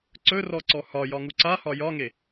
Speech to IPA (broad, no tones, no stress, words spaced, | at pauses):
ǀɵrɔǀɔ hɒjɒŋu ǀahɒ jɒŋe